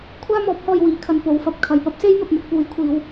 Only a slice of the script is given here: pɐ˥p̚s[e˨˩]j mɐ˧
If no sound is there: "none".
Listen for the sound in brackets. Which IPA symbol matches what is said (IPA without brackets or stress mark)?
e˥